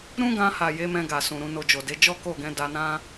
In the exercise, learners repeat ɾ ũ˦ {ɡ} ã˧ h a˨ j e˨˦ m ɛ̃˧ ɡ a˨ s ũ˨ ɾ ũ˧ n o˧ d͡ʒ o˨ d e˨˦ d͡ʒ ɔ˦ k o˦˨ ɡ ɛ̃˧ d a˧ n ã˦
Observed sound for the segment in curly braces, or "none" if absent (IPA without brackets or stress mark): ɡ